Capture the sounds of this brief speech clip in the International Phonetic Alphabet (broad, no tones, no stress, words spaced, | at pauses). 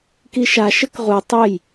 kiʃa ʃəkʁu tˤəj